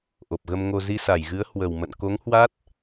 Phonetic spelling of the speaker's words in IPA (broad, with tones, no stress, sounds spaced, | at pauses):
ʔ o˨˩ p̚ ɣ ə˧ m ŋ o˧ z i˧ s a˧˩ j ɣ ɨ˨˦ ə̯ h w ə˨˩ w m ə̰˧˨ n k o˨˦ ŋ h w a˦˥ t̚